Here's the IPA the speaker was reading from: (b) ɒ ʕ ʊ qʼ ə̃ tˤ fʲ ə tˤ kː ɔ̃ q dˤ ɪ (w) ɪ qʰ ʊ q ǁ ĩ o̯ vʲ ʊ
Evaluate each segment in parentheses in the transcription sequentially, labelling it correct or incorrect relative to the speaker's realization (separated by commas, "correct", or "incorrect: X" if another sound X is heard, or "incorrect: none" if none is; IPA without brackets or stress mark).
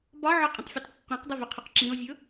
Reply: correct, incorrect: v